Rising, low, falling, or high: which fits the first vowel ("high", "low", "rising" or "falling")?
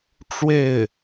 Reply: falling